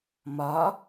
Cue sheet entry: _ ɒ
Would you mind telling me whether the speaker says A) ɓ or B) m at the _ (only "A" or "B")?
B